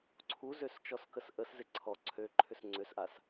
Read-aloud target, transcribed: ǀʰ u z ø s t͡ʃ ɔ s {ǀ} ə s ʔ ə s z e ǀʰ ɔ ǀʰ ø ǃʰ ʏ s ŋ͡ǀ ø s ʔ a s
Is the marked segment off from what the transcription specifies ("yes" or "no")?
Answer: yes